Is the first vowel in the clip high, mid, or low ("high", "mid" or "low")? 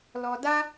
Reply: mid